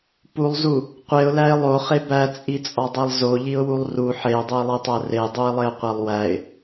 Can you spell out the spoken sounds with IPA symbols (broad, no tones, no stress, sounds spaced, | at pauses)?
p u lˠ z u | qʷ e ʊ̯ l æ ɪ̯ lˠ o χ e b æ t͡sʼ i t͡sʼ ɒ dˤ e lˠ z o ʎ i ʊ̯ w u lˠ r u ħ e ʊ̯ dˤ o ɪ̯ lˠ i tˤ æ r e dˤ u ɪ̯ lˠ e ʊ̯ qʷ æ lˠ w æ ɪ̯